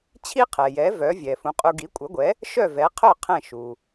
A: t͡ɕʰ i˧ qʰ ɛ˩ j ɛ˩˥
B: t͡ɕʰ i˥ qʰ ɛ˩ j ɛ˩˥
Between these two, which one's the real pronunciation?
B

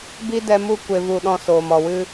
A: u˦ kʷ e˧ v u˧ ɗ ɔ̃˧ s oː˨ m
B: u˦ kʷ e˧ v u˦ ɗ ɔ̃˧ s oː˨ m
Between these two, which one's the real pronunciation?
A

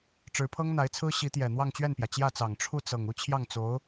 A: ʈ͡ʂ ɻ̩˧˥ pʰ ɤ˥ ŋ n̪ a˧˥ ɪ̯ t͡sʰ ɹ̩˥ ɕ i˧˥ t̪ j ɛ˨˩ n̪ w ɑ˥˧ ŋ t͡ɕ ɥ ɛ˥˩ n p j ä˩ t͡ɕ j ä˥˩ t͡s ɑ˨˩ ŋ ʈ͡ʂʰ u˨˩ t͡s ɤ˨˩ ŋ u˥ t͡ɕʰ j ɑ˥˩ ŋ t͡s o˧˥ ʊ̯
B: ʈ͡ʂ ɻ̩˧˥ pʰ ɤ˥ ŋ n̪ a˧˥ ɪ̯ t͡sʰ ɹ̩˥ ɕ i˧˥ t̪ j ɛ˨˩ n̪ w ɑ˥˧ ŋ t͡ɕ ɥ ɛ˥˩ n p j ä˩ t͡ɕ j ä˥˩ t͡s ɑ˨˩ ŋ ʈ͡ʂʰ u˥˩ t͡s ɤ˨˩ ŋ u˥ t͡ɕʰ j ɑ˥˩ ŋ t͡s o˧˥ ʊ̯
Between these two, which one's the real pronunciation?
B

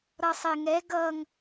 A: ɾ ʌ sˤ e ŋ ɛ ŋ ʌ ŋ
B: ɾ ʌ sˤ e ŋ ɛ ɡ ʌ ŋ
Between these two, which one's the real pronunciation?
B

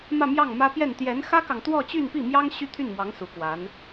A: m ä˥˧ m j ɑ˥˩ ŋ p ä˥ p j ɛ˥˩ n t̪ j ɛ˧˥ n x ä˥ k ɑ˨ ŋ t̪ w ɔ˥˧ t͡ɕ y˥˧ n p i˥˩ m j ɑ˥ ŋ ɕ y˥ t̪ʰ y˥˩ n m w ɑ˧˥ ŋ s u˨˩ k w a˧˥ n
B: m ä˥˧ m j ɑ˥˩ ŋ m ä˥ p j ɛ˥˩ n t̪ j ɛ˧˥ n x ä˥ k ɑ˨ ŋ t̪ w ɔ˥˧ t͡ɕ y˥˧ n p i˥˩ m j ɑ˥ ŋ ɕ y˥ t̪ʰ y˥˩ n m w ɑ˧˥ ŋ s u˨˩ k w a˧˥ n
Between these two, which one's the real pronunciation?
B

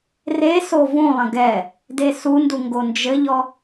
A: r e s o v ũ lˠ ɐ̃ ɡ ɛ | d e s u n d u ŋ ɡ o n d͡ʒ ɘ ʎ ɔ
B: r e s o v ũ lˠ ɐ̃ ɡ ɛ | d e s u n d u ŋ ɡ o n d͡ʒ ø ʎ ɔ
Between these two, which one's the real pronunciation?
A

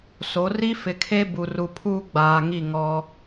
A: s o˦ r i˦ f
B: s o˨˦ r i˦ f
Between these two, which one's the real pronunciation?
B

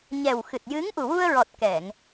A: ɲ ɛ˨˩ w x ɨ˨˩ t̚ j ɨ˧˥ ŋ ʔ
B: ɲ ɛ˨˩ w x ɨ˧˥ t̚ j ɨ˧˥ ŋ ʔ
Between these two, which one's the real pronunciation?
A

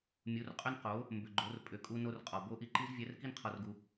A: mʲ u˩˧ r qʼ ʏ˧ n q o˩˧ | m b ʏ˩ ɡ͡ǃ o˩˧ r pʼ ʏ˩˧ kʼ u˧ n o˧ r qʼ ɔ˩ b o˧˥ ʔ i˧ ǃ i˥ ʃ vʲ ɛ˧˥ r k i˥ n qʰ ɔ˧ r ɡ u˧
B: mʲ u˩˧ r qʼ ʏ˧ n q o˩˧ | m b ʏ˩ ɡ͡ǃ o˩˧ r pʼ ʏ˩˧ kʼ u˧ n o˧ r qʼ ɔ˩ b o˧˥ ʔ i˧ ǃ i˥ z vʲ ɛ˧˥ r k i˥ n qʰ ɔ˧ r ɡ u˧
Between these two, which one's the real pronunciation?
B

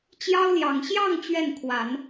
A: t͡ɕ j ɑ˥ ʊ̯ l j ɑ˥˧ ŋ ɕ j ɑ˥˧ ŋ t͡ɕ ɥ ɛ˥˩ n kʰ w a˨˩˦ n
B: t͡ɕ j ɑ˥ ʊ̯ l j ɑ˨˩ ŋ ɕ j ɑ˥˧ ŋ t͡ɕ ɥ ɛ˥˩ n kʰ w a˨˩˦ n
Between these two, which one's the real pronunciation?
B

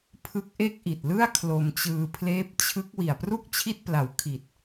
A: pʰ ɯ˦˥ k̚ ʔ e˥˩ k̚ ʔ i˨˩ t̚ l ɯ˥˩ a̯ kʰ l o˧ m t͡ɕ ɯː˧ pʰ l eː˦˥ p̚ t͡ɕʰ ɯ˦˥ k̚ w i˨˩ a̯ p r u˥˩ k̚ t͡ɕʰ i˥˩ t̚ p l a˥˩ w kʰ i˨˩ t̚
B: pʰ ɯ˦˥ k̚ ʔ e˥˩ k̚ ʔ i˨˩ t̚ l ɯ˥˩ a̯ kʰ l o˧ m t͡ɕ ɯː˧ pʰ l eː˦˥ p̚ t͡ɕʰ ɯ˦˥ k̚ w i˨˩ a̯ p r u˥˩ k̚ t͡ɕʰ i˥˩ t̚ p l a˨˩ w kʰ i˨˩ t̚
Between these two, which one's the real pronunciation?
B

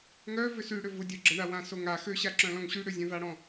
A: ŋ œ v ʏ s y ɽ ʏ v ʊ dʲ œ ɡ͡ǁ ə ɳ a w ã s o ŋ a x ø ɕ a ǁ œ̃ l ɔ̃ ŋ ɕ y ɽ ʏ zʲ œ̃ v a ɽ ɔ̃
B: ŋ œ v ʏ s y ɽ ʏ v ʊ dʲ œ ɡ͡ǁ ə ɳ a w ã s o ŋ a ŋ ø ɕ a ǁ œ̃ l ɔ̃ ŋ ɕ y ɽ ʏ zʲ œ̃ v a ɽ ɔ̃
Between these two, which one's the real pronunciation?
A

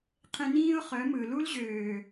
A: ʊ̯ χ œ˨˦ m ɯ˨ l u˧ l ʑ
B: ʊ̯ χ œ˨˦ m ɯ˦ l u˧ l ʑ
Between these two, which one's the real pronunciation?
A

